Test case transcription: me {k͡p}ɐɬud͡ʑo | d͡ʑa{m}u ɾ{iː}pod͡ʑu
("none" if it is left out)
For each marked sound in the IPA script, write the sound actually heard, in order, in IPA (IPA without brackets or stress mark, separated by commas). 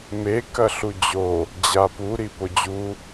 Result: k, p, i